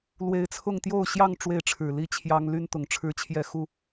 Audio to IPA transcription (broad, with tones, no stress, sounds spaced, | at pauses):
l w e˨˦ ɪ̯ t͡sʰ ʊ˥˨ ŋ t̪ j o˥˨ ʊ̯ ɕ j ɑ˥˨ ŋ ʈ͡ʂ w e˥˨ ɪ̯ ʈ͡ʂʰ ɻ̩˨˩ l i˥˨ t͡ɕʰ j ɑ˦ ŋ l y˦ n t̪ ʊ˨˩ ŋ ʈ͡ʂʰ ɻ̩˦ t͡ɕʰ j ɛ˥˨ x u˥˨